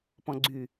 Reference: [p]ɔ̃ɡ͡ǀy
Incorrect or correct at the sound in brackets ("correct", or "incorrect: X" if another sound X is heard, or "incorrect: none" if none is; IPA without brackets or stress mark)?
correct